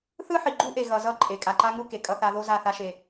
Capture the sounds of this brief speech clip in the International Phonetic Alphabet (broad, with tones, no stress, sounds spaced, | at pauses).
θ ɯ˦ ħ i˨ ɡ͡ǃ u˦ ʔ e˨ ɣ ʌ˨ z ʌ˦˨ ǃʼ e˨ kʼ a˨ ǃ a˦ ŋ u˦ k e˨ kʼ ʌ˦ θ a˦ ð o˦ z a˦˨ θ a˦ ʃ e˦